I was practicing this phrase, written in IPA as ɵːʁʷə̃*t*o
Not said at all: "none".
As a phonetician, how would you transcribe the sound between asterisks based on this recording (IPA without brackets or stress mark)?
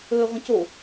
c